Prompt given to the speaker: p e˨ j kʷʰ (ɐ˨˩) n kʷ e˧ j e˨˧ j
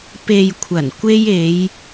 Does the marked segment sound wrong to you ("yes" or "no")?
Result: no